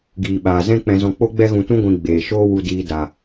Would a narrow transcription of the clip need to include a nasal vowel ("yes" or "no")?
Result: yes